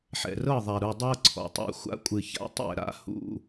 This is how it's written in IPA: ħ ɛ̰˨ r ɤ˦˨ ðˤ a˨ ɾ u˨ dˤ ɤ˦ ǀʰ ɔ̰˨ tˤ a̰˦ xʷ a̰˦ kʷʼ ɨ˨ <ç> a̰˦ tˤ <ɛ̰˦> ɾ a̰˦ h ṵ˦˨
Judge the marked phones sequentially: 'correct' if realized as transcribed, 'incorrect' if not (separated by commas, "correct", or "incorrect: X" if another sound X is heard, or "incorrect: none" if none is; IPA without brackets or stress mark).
correct, incorrect: ɛ̰˦˨